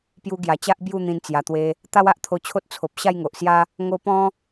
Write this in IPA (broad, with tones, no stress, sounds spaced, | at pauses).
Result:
p j u˧ ɡ j a˨˩ t͡ɕ a˦ ʔ b j u˥˧ n̪ ĩ˧ n t͡s j a˨˩ t̪ w e˧ | t̪ a˦ w a˦ ʔ t̪ʰ o˧ t͡ɕʰ o˦ t̚ t͡sʰ o˨ p̚ ɕ a˥˧ j ŋ o˨ ʔ s j a˦ | ŋ o˧ p ɔ̃˦